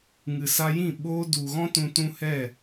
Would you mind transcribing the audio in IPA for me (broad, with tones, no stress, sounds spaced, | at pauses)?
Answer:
ŋ ɨ˨ s a˧ j ĩ˦˨ ɓ oː˧ d u˨ ɣ ɔ̃˦ t ũ˧ t ũ˦ h ɛ˦˨